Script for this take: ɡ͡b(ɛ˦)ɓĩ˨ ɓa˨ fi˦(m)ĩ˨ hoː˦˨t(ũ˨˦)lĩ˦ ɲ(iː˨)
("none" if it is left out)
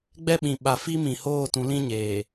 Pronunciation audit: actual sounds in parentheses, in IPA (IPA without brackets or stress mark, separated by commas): ɛ˦, m, ũ˨˦, eː˨